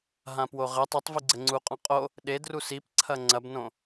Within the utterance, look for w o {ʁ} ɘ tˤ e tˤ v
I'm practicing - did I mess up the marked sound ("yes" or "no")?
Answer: no